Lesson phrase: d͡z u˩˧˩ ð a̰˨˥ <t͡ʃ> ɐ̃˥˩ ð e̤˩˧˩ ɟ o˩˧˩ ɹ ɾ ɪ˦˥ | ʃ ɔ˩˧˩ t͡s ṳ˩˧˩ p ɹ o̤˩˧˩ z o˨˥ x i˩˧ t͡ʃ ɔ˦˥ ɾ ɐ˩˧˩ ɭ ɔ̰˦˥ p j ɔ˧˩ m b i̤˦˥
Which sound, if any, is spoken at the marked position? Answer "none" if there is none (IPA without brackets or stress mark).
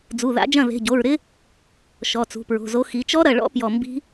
d͡ʒ